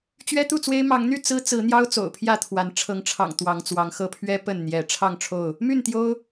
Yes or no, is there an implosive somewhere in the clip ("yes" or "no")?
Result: no